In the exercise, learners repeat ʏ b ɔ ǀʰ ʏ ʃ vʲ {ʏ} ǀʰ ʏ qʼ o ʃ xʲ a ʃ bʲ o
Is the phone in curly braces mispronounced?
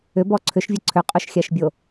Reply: yes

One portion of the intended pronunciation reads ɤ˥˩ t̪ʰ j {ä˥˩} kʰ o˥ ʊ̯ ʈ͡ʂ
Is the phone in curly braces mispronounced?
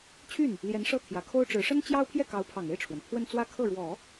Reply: yes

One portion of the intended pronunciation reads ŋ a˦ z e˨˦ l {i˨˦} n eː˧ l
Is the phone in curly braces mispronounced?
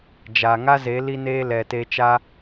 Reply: yes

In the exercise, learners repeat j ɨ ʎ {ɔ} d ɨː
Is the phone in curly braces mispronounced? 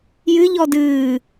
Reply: no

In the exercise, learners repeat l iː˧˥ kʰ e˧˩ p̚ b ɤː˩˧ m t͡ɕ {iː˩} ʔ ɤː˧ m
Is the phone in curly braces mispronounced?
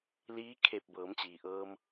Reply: no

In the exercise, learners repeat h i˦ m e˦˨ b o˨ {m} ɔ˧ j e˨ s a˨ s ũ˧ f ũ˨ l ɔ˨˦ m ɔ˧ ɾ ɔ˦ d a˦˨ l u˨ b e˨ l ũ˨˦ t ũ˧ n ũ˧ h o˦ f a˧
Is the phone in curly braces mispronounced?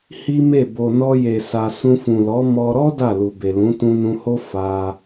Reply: yes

